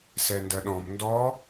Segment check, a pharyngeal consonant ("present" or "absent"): absent